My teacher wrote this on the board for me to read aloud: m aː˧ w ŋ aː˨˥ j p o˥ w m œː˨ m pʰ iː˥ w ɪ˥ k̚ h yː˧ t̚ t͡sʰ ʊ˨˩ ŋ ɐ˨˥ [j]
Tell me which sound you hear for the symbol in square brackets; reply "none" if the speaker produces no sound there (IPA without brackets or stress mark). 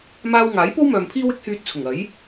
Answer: j